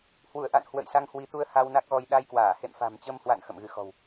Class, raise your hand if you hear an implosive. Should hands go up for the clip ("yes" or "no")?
yes